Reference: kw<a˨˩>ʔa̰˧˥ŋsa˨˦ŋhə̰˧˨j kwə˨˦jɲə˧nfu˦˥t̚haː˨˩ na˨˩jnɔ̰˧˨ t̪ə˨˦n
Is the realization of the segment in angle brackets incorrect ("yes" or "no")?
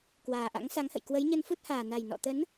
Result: yes